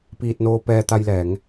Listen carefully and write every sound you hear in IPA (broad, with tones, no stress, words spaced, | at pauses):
piː˧t̚noː˧pɛː˧ t̪a˧jlɛː˩˧ŋ